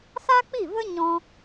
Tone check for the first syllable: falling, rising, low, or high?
high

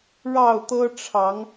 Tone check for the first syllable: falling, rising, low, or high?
falling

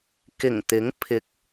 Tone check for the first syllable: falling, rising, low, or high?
low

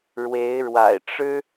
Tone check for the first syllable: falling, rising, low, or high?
rising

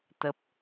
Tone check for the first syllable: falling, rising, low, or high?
low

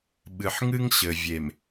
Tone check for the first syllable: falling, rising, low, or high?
low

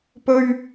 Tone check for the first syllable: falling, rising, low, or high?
high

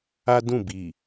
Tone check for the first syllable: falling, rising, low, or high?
high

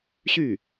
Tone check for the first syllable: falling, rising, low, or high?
falling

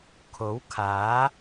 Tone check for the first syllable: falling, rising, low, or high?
rising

